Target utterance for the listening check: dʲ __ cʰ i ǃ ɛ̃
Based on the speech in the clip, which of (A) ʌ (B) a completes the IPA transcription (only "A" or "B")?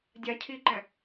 B